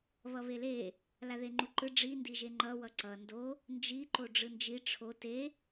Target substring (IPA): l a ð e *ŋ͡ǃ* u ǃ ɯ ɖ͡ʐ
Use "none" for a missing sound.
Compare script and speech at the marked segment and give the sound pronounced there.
ŋ͡ǃ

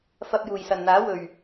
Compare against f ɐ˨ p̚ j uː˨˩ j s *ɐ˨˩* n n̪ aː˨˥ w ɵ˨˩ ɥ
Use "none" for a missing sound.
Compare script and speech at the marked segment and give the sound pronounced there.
ɐ˨˩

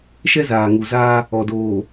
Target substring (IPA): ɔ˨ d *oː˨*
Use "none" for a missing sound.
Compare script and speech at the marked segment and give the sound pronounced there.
oː˨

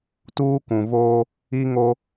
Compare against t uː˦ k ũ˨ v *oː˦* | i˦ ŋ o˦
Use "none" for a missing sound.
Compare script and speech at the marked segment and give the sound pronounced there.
oː˦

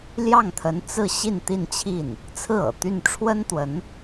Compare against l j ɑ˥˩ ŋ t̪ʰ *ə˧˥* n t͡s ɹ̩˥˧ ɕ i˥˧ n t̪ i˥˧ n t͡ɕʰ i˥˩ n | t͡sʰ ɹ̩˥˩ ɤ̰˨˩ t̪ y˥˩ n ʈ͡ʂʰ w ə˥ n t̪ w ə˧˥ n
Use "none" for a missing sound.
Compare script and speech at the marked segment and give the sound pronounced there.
ə˧˥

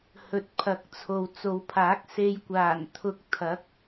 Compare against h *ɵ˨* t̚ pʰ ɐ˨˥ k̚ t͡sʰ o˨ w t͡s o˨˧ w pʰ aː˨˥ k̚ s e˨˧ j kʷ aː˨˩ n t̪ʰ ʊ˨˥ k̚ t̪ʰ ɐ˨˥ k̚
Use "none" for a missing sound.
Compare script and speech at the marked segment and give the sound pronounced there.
ɵ˨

